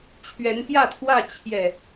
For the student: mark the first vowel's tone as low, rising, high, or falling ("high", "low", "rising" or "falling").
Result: rising